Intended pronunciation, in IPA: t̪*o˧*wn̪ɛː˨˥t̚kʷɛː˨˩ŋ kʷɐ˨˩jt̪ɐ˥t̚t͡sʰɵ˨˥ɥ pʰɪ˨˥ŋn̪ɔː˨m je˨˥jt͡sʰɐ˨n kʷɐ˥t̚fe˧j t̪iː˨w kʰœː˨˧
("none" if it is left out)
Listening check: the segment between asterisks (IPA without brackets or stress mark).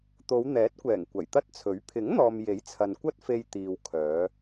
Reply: o˨˧